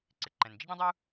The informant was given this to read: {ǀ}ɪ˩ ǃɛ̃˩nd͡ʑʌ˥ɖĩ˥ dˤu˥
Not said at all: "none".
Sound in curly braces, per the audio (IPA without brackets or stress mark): ǀ